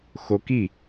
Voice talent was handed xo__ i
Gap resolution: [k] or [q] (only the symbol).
k